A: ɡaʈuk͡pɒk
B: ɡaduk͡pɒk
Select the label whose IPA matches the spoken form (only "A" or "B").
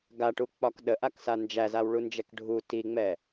A